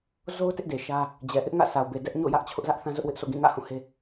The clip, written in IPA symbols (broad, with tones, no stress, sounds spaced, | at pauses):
z o˦ ʊ̯ t ɪ˦ ʔ d e˨ ʃ ä˦ | d͡ʑ ɛ˨ ʔ ɪ˦ ʔ ŋ ä̰˦˨ s a˨ ʊ̯ b e˨ d ɛ˦ ʔ ɲ o̰˦˨ j ä˦ ʔ t͡ɕʰ ʊ˦ ʔ z ä˦ ʔ θ ã˦ z ʊ˦ ʔ w ɪ˦ ʔ s o̰˦˨ ɡ ĩ˦˨ ŋ ä̰˦˨ h ũ˦˨ h e˦